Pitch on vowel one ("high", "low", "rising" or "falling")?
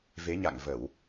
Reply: rising